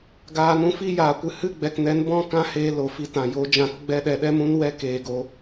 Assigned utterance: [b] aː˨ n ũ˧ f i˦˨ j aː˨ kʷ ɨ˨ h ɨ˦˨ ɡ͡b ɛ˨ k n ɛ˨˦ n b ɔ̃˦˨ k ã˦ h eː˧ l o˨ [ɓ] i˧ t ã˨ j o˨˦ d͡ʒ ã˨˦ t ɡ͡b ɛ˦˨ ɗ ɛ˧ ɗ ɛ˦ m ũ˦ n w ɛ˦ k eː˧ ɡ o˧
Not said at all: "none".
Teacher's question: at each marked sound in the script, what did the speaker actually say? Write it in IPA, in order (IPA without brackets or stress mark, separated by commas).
ɡ, f